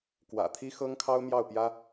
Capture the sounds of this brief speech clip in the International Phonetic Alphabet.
k w ä̰˨˩ t̪ʰ i˥ x ɤ˥ ŋ kʰ ɑ˥ ʊ̯ m j ɑ˥˩ ʊ̯ p j ä˥

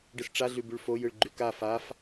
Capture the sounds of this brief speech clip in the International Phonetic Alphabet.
ɖ ɯ s ʈ͡ʂ a ɮ ʉ b ʉ ɭ f o j ɯ ɭ ɡ͡ǃ ʉ k a f a f

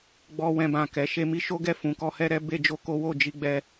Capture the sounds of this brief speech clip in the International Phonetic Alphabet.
ɡ͡b ɔ˦ w ɛ̃˦ b ã˦˨ k ɛ˨˦ ʃ e˦ m i˦ ʃ o˦ ɡ ɛ˦ f ũ˧ k ɔ˦ h ɛ˦ ɾ ɛ˦ b e˦ d͡ʒ o˦ k o˦ w o˦˨ d͡ʒ i˧ ɡ͡b ɛ˦

